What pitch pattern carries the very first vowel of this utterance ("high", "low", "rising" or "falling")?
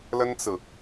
high